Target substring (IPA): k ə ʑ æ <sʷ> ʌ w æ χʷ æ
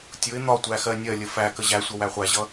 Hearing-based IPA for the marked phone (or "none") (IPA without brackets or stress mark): sʷ